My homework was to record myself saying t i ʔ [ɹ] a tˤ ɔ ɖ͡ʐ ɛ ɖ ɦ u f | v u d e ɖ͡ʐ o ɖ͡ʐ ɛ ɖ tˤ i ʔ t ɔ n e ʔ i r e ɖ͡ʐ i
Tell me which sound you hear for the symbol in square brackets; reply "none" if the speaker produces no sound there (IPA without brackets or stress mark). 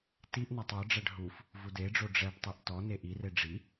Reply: n